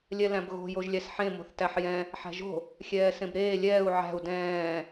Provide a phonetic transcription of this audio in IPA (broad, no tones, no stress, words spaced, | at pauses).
lʲɛlæ̃bɣo̤ joʒlʲæsħẽ mo̤θtæħjɛ̃ | ħæ̤ʒo̤ | xʲɛːsẽbɾeː lʲɛːu̯ ʕæ̤u̯ dɛ̃ː